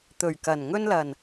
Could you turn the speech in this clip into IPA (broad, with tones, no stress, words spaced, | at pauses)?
t̪ɵ˨˩ɥkɐ˨˩n ŋɵ˧nlɐ˨˩n